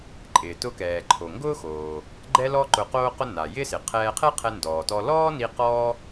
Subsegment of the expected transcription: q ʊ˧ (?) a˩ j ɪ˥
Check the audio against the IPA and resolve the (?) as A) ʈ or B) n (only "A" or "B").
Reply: B